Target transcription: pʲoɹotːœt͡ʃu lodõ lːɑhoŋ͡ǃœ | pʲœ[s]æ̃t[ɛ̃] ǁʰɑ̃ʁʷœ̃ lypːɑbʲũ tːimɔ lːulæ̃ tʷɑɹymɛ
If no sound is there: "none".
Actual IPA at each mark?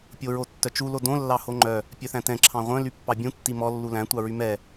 θ, ɛ̃

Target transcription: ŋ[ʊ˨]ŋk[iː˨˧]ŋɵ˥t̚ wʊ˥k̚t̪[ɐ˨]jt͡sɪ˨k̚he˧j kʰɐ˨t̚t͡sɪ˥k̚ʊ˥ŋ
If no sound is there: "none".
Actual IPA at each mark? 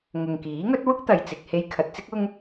ʊ˨, iː˨˥, ɐ˨

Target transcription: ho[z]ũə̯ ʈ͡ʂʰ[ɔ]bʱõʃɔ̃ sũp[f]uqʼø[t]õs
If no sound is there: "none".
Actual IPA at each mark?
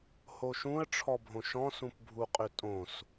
ʃ, ɔ, bʱ, tʼ

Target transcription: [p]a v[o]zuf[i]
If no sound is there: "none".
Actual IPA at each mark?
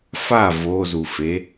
f, o, e

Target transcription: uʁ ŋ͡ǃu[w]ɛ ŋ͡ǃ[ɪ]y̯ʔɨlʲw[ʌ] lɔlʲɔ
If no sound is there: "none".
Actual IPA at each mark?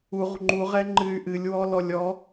ʁ, ɨ, ɔ

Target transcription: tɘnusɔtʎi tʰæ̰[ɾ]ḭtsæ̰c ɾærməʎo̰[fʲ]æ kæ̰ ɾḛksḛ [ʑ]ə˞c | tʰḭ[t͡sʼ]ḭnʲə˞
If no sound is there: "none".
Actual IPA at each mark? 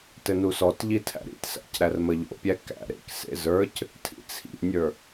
ɾ, pʲ, z, t͡sʰ

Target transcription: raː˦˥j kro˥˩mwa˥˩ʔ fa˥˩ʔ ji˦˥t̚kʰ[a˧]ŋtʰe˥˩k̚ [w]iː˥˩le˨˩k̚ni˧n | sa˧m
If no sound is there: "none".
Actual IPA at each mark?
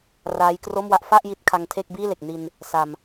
a˧, b

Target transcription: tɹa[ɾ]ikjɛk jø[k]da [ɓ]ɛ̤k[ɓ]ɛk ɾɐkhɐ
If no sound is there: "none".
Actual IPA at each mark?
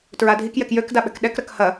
dʱ, k, ɓ, ɗ

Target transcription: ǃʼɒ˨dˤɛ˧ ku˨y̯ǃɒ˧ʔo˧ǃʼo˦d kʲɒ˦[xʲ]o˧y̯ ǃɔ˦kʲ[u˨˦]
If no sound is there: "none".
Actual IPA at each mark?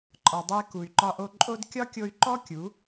kʲ, u˨˦

